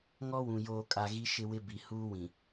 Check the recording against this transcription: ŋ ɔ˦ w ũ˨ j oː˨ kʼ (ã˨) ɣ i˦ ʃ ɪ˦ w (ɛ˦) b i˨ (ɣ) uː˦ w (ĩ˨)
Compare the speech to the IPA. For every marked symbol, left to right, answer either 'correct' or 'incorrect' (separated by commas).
incorrect, incorrect, incorrect, correct